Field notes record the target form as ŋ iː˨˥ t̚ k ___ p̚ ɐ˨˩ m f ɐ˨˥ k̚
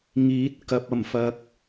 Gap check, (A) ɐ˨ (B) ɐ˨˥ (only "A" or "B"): A